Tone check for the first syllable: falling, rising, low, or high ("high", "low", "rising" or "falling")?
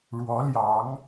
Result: rising